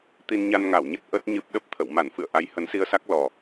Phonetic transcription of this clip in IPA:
t̪ i˧ n ɲ a˧ n ŋ a˧˩ w ɲ ə˦˥ t̚ ʔ ə˦˥ t̚ ɲ ɨ˦˥ p̚ ɗ ə˦˥ p̚ t̪ʰ ə̰˧˨ w m a˧˩ n f ɨ̰˧˨ ə̯ ʔ a˨˦ j h ə˨˦ n s i˧ ə̯ s a˦˥ k̚ l ɔ˨˩

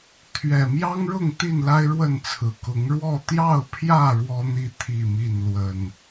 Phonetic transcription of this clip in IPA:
t̪ʰ ɥ ɛ˨˩ m j ɑ˦ ŋ ɻ ʊ˥˨ ŋ t̪ i˥˨ n l a˦ ɪ̯ ɻ w ə˥˨ n t͡sʰ ɹ̩˨˩ k ʊ˨˦ ŋ ɻ w ɔ˥˨ t̪ j ɑ˥˨ ʊ̯ pʰ j ä˥˨ ɻ w ɔ˦ n̪ i˥˨ t̪ʰ i˥˨ m i˥˨ n l w ə˨˩ n

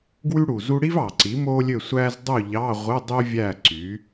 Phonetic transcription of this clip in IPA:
ɡ w y˥ ɽ u˨˩ z u˥ ɽ i˥ v ɑ˨˩ ǀ i˩˥ m o˥ lʲ ø˥˨ sʷ æ˥ z dˤ u˥˨ ʎ ɑ˧˥˧ ʁʷ ɯ˧˥˧ dˤ y˥ vʲ æ˥˨ ǀ y˩˥

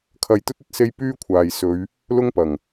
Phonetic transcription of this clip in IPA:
kʰ ɐ˧ j t̪ ɵ˥ t̚ ɵ˥ t̚ s e˥ j p yː˥ kʷʰ aː˨ j s ɵ˨˧ ɥ | l ʊ˥ ŋ p ɐ˨˩ ŋ

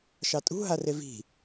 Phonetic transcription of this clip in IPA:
ʃ ɑ tʼ ṳ ɦ a r e v i̤

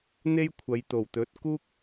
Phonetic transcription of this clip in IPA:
n̪ e˥ j kʷʰ ɐ˨˧ j t̪ o˨˩ w t̪ ɵ˨˥ t̚ k uː˥ k̚

